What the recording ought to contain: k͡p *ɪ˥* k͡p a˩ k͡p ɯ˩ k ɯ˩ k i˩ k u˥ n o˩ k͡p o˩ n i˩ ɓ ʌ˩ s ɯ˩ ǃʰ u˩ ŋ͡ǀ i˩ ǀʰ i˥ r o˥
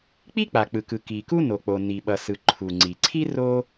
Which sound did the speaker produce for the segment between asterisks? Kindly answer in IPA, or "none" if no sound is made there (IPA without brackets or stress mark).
i˥